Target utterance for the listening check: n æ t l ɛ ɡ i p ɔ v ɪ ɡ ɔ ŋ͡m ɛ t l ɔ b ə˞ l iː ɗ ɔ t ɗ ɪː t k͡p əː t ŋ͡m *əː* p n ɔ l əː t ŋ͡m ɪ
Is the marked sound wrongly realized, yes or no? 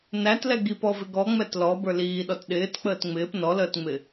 yes